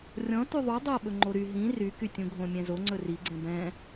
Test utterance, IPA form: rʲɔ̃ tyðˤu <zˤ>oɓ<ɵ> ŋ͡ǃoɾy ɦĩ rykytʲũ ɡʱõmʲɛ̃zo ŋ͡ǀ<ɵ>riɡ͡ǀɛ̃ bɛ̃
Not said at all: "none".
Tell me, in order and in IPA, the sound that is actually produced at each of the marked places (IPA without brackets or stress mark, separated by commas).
dˤ, ɵ, ɵ